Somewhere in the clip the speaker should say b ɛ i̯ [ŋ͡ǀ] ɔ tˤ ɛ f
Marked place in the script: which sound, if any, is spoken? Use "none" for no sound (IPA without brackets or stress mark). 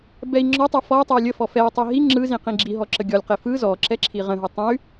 ŋ͡ǁ